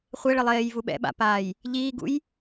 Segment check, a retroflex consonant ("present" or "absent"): present